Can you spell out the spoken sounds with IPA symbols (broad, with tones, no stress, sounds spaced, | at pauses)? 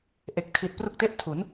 ʔ e˨˩ k̚ tʰ i˨˩ t̚ p r u˦˥ k̚ t e˥˩ ʔ tʰ u˩˦ n